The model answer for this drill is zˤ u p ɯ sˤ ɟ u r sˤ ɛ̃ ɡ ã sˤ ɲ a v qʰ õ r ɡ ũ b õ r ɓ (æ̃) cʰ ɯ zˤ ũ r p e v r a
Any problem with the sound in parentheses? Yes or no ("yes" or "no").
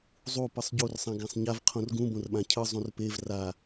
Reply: yes